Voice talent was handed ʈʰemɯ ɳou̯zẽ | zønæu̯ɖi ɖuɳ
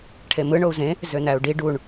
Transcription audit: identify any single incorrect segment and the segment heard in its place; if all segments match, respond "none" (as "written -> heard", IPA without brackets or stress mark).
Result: none